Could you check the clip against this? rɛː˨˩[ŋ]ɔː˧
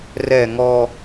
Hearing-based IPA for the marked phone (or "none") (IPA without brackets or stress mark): ŋ